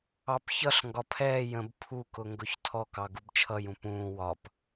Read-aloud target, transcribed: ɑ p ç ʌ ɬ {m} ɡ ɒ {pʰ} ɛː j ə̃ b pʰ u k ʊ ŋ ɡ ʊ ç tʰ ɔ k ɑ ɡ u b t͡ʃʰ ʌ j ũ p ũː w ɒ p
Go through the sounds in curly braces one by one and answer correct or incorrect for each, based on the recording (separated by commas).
incorrect, correct